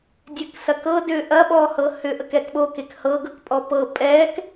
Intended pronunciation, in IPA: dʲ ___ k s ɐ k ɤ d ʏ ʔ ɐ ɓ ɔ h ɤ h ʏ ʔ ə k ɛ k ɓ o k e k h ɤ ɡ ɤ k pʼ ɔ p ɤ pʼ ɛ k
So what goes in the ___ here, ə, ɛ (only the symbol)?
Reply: ɛ